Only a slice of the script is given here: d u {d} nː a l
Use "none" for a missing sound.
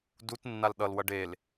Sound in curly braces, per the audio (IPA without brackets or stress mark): t